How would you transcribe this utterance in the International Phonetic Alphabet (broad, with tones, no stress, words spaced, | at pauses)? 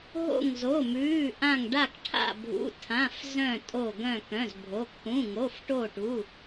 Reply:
ɦo̰˧˩ŋzo˩˧˩mʉː˩˧˩ ʔã˧˩ŋ ɖa˧˩kʈʰa̰˧˩bʱṵ˩˧˩ tʰã˩˧˩fzœ̃˧˩ tʼo˧˩ɡœ̃˧˩ kœ̃˩˧˩zbʱo˩˧˩ kʰũ˩˧˩ŋo˩˧˩fʈo˧˩ʈu˩˧˩